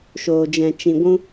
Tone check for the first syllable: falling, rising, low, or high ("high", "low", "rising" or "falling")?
low